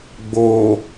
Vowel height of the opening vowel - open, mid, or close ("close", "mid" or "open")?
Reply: mid